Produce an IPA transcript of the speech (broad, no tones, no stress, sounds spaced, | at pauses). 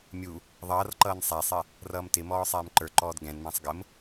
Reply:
mʲ u | ðˤ ʌː r ǃ ʌː n sˤ æ sˤ ɪ | r ʌː m t ɪ m ɔː sˤ ɛː m ǃ ə˞ ǃ ɔː d ɡ ɛ̃ n m æ̃ sˤ ɡ ə m